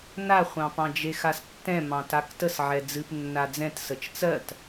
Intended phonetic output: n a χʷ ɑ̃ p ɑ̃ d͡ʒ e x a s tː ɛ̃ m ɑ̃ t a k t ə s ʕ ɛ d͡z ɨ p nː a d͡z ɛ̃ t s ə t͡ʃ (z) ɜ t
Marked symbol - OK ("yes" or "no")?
no